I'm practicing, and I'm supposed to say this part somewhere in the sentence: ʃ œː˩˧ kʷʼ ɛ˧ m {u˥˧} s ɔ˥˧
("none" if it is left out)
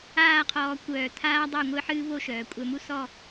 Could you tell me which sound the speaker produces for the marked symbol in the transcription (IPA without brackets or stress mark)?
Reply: u˥